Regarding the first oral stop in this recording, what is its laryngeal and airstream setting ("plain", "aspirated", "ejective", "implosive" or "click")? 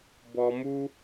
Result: plain